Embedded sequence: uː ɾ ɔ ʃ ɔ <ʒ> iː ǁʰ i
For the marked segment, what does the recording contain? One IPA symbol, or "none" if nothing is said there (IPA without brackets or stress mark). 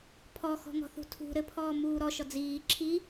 d͡z